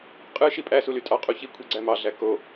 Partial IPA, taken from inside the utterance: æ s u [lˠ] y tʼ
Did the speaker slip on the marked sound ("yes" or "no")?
yes